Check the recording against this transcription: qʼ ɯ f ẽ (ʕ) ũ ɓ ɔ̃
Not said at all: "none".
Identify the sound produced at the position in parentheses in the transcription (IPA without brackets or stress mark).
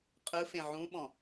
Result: ʕ